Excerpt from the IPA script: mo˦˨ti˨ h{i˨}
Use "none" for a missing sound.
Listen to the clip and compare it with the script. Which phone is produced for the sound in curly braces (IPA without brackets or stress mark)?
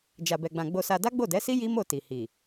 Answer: i˨